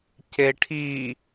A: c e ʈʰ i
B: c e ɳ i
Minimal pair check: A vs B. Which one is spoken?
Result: A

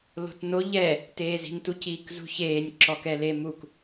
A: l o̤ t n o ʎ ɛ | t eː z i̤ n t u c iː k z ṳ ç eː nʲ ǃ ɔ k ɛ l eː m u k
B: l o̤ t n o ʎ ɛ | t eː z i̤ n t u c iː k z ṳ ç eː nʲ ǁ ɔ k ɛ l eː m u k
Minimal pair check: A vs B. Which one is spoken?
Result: B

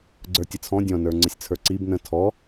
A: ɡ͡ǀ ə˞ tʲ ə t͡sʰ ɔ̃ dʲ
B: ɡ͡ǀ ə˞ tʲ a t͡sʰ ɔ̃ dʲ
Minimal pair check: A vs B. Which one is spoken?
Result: A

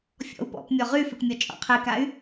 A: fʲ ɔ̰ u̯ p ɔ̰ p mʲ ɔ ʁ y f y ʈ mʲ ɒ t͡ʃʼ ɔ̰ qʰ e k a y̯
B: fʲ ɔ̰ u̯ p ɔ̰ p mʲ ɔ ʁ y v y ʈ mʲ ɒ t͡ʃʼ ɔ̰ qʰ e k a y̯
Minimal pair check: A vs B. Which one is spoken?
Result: A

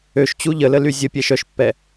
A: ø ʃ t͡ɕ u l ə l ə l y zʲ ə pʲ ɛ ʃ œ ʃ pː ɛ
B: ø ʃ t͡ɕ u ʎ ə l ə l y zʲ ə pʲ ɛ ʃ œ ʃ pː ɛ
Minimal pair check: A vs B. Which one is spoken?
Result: B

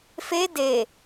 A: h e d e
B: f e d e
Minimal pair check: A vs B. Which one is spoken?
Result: B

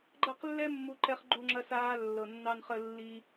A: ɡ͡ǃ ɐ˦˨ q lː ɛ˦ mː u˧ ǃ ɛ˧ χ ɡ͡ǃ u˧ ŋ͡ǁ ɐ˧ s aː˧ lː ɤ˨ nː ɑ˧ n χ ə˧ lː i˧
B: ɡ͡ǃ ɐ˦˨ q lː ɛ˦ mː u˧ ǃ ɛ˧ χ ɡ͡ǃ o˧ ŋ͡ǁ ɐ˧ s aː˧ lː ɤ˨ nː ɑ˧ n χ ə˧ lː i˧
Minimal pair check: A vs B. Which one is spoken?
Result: A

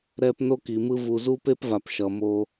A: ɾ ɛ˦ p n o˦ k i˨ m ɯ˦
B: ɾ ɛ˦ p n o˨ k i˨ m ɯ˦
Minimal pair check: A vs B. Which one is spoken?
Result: A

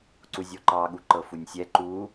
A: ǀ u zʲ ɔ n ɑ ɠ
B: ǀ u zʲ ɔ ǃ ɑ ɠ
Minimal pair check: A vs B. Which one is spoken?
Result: B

